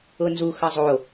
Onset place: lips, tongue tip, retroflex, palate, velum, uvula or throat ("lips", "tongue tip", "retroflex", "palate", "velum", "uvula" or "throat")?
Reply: tongue tip